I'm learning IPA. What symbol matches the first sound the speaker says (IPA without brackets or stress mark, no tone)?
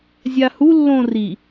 zʲ